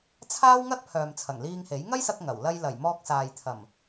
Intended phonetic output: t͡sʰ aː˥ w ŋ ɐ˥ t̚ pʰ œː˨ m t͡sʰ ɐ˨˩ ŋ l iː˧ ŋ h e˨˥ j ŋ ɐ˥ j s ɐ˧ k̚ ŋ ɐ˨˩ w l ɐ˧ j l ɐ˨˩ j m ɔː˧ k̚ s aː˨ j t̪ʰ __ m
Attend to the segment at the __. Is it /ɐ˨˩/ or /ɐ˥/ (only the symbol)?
ɐ˨˩